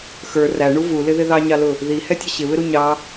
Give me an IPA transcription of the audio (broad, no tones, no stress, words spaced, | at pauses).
xə˞ ræɳu vulɪðɪ ðɑɲɑlʊ | ðihɛtʲʌ ɕɪβɪɾu ɲɑ